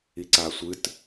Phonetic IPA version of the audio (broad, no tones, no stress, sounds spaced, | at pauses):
i ǀ a sʷ ɨ t